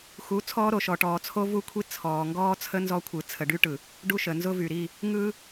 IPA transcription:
xu˨˦ t͡sʰɔː˦ɾo˨ʃɔ˨ʈɔː˨ t͡sʰo˦vu˦kʷʰi˦ t͡sʰɔː˨ŋɡɔː˦ t͡sʰə˦nzɔ˦kʷʰɯ˨ t͡sʰə˨ɖy˦ʈɯ˨ | ɖu˦ʃə˨ nzʊ˦vy˨ɾi˦˨ | ŋɯ˦

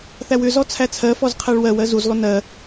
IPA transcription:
θæwʏzɔ t͡sʰæt͡sʰɜfɔz qʰæɭwɜwɜ zuzlˠʏ nɜ

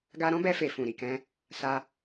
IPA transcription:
ɡa˧ɾɔ̃˦bɛ˧fe˨ fũ˨ ɾi˨kɛ̃˧ | sa˧

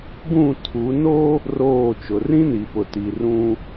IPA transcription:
ɡũ˦˨tʰu˨˦ no˦ | roː˦˨t͡ʃʊ˨ rĩ˦ni˨pʊ˨ti˨ rũ˦

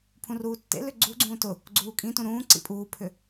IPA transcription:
pʰũruːtːḛlʏ ɡ͡ǀuɡ͡ǀũː tʊ | ɡ͡ǀuːkʼĩtũ ɾũːǀḭ pʼuːpʰʏ

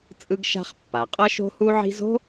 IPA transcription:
t͡sʼɯ˥ɡʃa̤˥χ pːa˩ qʼʌ˥ʃo̤˥hu˥ʕi̤˥z o̤˥

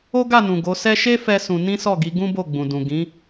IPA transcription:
o˦ɡa˦˨nũ˨ ɡo˨˦sɛ˦ ʃe˦ fɛ˦sũ˧ nĩ˦sɔ˦˨ɡi˨˦ ɡũ˦bo˦˨ɡ͡bũ˨dũ˨ ɡĩ˨˦

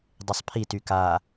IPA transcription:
dˤesˤpʰi tyka

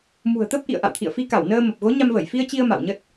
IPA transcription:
mṳ˨˩ə̯t̪ə˦˥p̚ ʔḭ˧˨ə̯ʔa̰˧˨wt̪ʰḭ˧˨ə̯fi˧ ka˧˩wnəː˧mə˨˩p̚ ɣo˨˦ɲa˧mvə˧˩j fi˧ə̯t͡ɕi˧ə̯ ma̰˧˨wɲə˦˥t̚

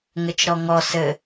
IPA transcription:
ŋɘt͡ʃɾɔŋɔ sɘ

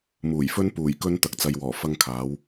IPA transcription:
muː˨˩jfɵ˥n puː˨˩jkɵ˥n t̪ɐ˧k̚t͡sɐ˧jwɔː˨˩ fɐ˥ŋkʰaː˨˥w

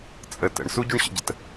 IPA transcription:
t͡sʼə tə̰ɳ suɟuɳɕə̰ɟət

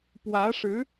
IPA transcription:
pwä˧˥ʂɻ̩˧˥

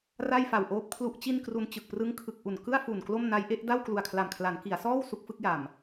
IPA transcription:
ra˥˩jfa˨˩wʔoː˦˥p̚ kʰlu˦˥ʔt͡ɕi˥˩nkru˧n t͡ɕɯ˨˩k̚prɯ˦˥ŋkʰɯ˨˩k̚ʔu˨˩n kɯ˥˩a̯ fu˨˩nklo˥˩mna˦˥jʔe˦˥ʔ da˥˩wklu˨˩a̯kʰla˨˩mkʰla˩˦n ki˩˦a̯sɔː˥˩w su˦˥k̚fɯ˦˥k̚ja˨˩m

